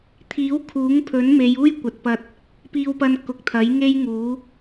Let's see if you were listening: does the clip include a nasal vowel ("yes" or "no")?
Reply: no